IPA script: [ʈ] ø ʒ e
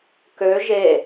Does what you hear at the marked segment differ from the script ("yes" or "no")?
yes